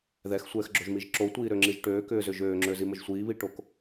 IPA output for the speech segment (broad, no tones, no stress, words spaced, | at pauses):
ðɛxsʷɛːxɡ͡ǁoʒmiʒ ǁotʷiːɾøŋ͡ǁiʒ ʈøːkʏːzʏ ʒøːŋ͡ǁøziməʒ sʷiːβiʈok